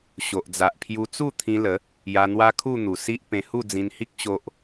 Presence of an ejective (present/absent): absent